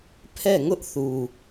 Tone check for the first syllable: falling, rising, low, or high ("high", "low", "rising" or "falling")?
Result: falling